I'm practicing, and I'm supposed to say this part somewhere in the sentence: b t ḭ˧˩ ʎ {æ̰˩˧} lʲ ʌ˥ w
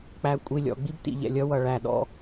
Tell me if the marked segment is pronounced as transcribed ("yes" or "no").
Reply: no